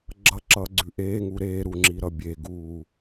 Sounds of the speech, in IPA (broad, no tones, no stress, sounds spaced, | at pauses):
ɡ͡ǁ ʌ ǁ ʌː ɡ͡ǀ ʉ ʔ eː ŋ u ɾ eː ɾ u ŋ͡ǁ i ɾ ʌ bʲ e ɡ uː